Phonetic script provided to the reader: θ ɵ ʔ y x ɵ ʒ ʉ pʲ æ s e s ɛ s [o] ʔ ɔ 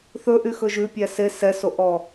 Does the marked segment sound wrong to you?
no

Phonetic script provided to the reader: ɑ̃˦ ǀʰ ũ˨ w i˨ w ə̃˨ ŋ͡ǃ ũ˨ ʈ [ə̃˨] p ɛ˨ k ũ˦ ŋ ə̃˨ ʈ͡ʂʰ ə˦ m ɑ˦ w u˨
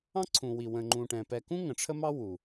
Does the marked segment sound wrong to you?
yes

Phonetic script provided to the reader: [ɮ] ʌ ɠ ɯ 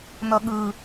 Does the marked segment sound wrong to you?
yes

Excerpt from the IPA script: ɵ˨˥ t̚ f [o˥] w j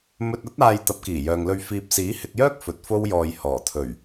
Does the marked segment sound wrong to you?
no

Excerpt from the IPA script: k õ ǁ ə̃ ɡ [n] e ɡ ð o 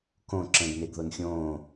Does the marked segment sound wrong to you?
no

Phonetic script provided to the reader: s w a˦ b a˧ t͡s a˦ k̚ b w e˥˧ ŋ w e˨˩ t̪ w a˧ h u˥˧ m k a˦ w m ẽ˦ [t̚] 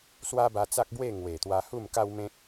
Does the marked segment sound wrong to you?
yes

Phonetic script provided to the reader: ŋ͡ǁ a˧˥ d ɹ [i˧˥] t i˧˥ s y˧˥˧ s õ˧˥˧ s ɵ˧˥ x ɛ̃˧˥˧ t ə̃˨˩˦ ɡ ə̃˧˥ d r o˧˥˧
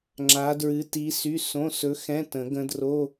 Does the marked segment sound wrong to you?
yes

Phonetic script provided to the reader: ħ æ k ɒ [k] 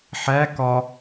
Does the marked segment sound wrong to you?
yes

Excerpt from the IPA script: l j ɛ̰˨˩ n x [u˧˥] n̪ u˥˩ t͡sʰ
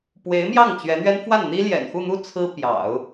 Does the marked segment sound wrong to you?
yes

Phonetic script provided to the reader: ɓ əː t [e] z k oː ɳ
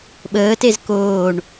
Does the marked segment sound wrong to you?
no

